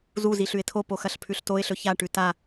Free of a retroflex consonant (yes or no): no